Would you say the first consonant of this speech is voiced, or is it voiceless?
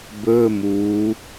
voiced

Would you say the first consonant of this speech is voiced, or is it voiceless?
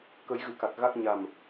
voiceless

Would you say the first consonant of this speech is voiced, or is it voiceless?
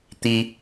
voiceless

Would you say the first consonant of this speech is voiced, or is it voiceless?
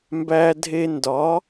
voiced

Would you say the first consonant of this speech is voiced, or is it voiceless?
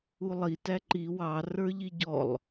voiced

